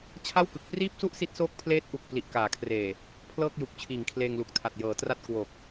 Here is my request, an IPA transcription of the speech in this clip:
t͡ɕʰ a˥˩ w k ɯ˨˩ k̚ p r iː˥˩ p̚ s u˥˩ ʔ s i˦˥ t̚ s oː˦˥ k̚ pʰ l eː˦˥ t̚ ʔ u˨˩ k̚ p l i˨˩ ʔ k aː˩˦ kʰ r eː˨˩ | pʰ l ɤː˥˩ k̚ j u˨˩ k̚ t͡ɕʰ iː˨˩ ŋ kʰ l eː˧ ŋ l u˨˩ k̚ tʰ a˨˩ t̚ j ɤː˩˦ t r a˥˩ t̚ k w o˨˩ k̚

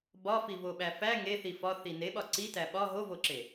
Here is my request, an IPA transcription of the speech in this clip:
b ɒ f i v o ɓ æ f æ ŋ e θ i f ɒ θ i n e ɓ ɒ ǀ i t æ ɓ ɒ ɦ o v o ǁ e

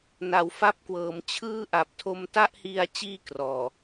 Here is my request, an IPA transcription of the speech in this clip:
n a˩˦ w f a˦˥ p̚ k w ɤː˩˦ m t͡ɕʰ ɯː˥˩ ʔ a˨˩ p̚ tʰ o˧ m t a˥˩ ʔ h i˧ a̯ t͡ɕ iː˥˩ k r ɔː˨˩

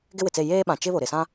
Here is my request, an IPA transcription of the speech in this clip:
ɡ ɪ˦ w ɪ˨ t͡s e˦˨ j eː˦ ɓ ã˨ t͡ʃ ɪ˦ β o˨ ɾ ɪ˨ s ã˦

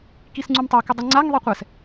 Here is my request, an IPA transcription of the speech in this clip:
k i s ŋ͡ǀ u m tˤ a k ɪ dˤ i ŋ͡ǀ a ŋ ðˤ i qʷ ɛ s

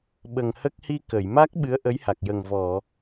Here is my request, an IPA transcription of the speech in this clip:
ɓ ə˨˩ ŋ h ə˦˥ k̚ h i˧ k ə˨˩˨ j m a˦˥ k̚ ɓ ɨ˧˥ ə̯ ʔ ə˧˥ j h a˨˩ k̚ j ə˨˩ ŋ v ɔ˨˩˨

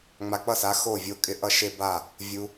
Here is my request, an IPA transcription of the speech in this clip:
ŋ͡m a˨ k͡p ʌ˥˩ s a˨˥ x o˥˩ vʲ o˦ kʼ ɪ˦ ʔ ʌ˦ ʃ e˦ b a˥˩ | vʲ u˨

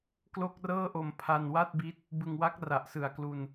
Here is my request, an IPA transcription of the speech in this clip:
k l o˥˩ k̚ r ɤː˥˩ ʔ o˧ m pʰ a˧ n w a˥˩ t̚ b i˦˥ t̚ | b ɯ˧ ŋ w a˦˥ k̚ r a˨˩ ʔ s ɯ˨˩ a̯ k l u˧ n

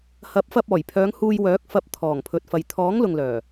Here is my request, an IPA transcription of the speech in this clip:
h ɐ˨˥ p̚ f ɐ˧ p̚ ɔː˨˩ j pʰ œː˨˧ ŋ h uː˧ j w œː˨˥ k̚ f ɐ˧ p̚ t̪ʰ ɔː˨˩ ŋ pʰ ɵ˨ t̚ f ɐ˨ j t̪ʰ ɔː˨˥ ŋ l ʊ˨ ŋ l œː˨˩

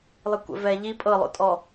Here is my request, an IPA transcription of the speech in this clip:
lˠ i kʷ ɛ̰ v ɛː ʎ i pʼ ɤ lˠ o̰ tʼ ɔ

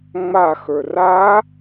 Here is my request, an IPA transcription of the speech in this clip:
ŋ͡m a x ə˞ r a

